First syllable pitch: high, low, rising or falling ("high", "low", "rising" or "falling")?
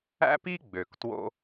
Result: high